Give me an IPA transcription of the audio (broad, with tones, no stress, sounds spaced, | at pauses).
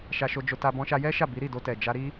ʃ a˧ ʃ o˧ d͡ʒ o˧ t a˧ b ɔ̃˧ ʃ a˧ j ɛ˦ ʃ a˦˨ b i˨˦ ɾ i˦˨ d o˧ t ɛ˨ d͡ʒ a˧ ɾ i˦